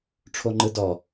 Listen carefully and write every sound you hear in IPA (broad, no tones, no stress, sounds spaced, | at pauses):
ʈ͡ʂʰ o ŋ͡ǃ ɯ d ɔ